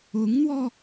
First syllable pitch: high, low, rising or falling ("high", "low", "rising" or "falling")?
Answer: rising